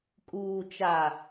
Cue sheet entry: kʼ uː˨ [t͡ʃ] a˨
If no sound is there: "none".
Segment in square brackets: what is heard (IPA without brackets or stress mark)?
t͡ʃ